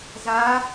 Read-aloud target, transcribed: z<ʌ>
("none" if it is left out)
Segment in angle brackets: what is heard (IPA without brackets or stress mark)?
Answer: a